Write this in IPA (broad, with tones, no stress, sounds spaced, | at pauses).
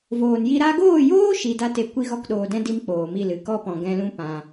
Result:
v oː˨ n j i˧ ɾ a˧ ɡ oː˦˨ j oː˦ ʃ i˧ d a˦ t e˧ kʷ i˦ ɣ ɔ˦ k ɗ oː˧ d ɛ̃˦ d i˦ m k͡p oː˨ m i˦˨ l ɨ˨˦ k ɔ˦ p ɔ̃˨ ɡ ɛ̃˧ l ũ˦ p ã˦